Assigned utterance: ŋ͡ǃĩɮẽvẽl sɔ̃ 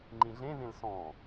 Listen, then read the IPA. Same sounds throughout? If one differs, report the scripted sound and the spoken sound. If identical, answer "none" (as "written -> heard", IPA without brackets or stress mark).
none